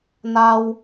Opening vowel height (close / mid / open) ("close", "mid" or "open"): open